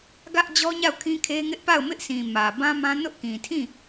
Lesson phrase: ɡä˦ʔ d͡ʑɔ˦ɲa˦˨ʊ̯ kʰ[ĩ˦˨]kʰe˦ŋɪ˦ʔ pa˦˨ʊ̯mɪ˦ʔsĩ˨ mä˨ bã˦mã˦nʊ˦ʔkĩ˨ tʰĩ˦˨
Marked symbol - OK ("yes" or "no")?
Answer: no